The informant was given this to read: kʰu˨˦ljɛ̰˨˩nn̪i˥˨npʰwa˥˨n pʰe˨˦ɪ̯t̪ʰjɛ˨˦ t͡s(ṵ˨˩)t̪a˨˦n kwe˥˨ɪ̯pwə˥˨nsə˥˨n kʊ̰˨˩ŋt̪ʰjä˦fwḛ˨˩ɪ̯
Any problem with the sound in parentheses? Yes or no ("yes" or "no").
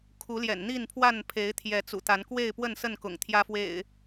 no